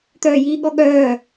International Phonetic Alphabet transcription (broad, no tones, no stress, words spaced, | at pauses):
t̪œːjiːɠɔɠœː